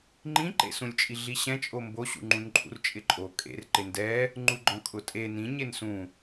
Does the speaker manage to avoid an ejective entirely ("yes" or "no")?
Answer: no